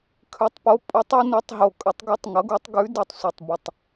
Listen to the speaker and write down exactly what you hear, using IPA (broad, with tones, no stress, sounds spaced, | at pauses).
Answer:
kʰ ʉ˩˥ tˤ p o˩˥ pʼ u˩˥ tˤ ʌ˩˥ n ɨ˩˥ tˤ ɦ o˨˩ kʼ ə˩˥ tˤ ɡ u˩˥ tˤ ŋ ʌ˩˥ ɡ u˩˥ tˤ ɡ ʉ˩˥ d ɨ˨˩ tˤ sʷ ɨ˨˩ tˤ b ə˨˩ tˤ